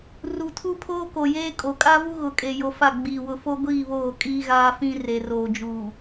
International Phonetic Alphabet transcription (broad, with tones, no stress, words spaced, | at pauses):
ru˨tʰu˦pʰoː˦ko˨ jeː˦kʼo˨ kʼa˦vu˦ ɣʊ˨kʼe˨ jo˨fa˦˨ ɡ͡biː˨ wʊ˨fo˦ɡʷiː˦˨ βoː˦˨kʼiː˦ɣaː˦fĩ˦ re˨roː˨d͡ʒuː˨